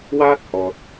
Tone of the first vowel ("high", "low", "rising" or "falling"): high